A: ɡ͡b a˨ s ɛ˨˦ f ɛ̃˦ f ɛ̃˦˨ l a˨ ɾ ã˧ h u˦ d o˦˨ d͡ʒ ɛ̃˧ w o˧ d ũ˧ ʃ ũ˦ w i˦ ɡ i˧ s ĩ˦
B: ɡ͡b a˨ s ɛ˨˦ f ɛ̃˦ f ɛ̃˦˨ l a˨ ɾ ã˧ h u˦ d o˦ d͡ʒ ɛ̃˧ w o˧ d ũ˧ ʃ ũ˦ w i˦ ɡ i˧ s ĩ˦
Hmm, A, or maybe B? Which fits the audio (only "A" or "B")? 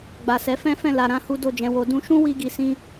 A